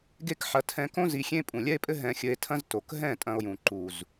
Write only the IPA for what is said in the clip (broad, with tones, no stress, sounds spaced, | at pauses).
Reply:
ɡ e˦ k ħ ɐ˧ tʰ ɛ̃˧ k õ˦ z i˧ xʲ ẽ˦ pʼ ũ˨ lʲ ɛ˦ e̯ pʼ ɘ˦ ɦ ɛ̃˧ xʲ ɘ˧ e̯ tʰ ɐ̃˦ z t o˨ k ɦ ɛ̃˦˨ tʼ ɐ̃˧ o̯ j ũ˨ ǃ u˨ z